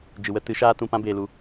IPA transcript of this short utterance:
d͡ʒ ɨ˨ w ə˦ t ɨ˨˦ ʃ aː˦ t ũ˧ p ã˦ b eː˨ l u˨

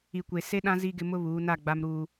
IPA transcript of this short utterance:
i˨ kʷ e˨ s e˦ ɗ ã˦ z i˦ ɡ ɪ˦ m ʊ˦ β uː˨˦ n a˦˨ ɡ͡b a˦ m ɾ uː˦

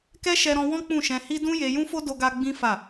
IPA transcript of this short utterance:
k ɛ˦ ʃ ɛ˧ ɾ ɔ̃˧ w ɔ̃˦ k͡p ũ˦˨ ʃ ɛ̃˧ h i˦ d ũ˦ j e˧ j ũ˦ f o˦ d o˦ ɡ a˦ ɡ͡b ĩ˦ f a˦˨

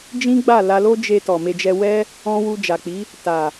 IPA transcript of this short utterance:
d͡ʒ ĩ˦ ɡ͡b a˦˨ l a˧ l o˦ d͡ʒ e˧ t ɔ˨ m e˧ d͡ʒ ɛ˧ w ɛ˦ | ɔ̃˦ w u˧ d͡ʒ a˨ k͡p i˨˦ | t a˨

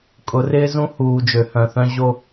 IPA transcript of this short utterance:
kʼ ʊ˨˦ r ɪː˦ z ũ˦ h uː˨ d͡ʒ ø˨ h œ̃˨ θ œ̃˦ ʑ o˦

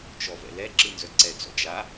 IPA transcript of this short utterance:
t͡ʃ ɔ v ɛ̰ l ɛ ǁ ɯ n z œ ǀ ɛ t͡s ɔ̰ d͡ʒ a

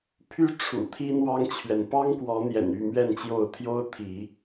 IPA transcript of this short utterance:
pʰ y˦ ʈ͡ʂʰ ṵ˨˩ t̪ʰ i˦ n̪ w ɑ˦ ŋ t͡ɕʰ ɥ ɛ˨ n p ɑ˦ ŋ k w ɔ˨˦ n̪ j ɛ̰˨˩ n y˥˨ m ɥ ɛ˥˨ n t͡ɕ j o˥˨ ʊ̯ t̪ʰ j o˦ ʊ̯ t̪ʰ i˨˦

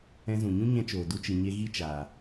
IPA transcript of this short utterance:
ɛ̃˧ z ũ˨ ɲ ũ˦ ɲ ɛ̃˧ t͡ʃ oː˨ d u˧ t͡ʃ ɨ˨ ɲ e˧ ɣ i˦ t͡ʃ aː˨

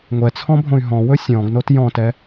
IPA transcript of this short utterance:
ŋʷ ɛ t͡sʰ ɔ̃ bʱ õ y̯ ɦ ɔ̃ w ɵ sʲ ɔ̃ ɡ n o t j ɔ̃ t ɛ

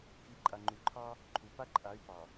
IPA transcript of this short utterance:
k i˨˦ ǃʼ a˨ ŋ͡ǃ u˨ ǃʰ ɑ˦ | ǃʰ u˨ p a˦ ǃʼ a˨˦ y̯ p ɑ˨

